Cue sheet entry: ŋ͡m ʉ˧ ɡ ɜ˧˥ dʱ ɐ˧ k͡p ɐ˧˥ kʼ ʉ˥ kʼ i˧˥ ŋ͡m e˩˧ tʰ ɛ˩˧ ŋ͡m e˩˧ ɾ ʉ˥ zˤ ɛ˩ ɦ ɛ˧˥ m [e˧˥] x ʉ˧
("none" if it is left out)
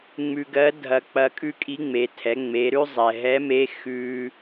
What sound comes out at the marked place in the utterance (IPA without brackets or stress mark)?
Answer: e˧˥